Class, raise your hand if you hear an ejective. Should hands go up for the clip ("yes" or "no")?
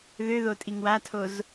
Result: yes